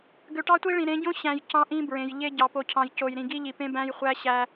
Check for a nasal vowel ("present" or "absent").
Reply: present